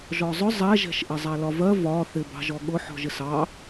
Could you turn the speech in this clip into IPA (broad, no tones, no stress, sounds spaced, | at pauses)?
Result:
ʒ ɔ zˤ ʊ zˤ ɛ ʒ ɛ̤ ʃ ʔ ɪ zˤ æ l ɒ v ɜ v ɒ θ ɪ b ɑ̤ ʒ ɔ ɠ ʊ ħ ɔ̤ ʒ ɪ s ɑ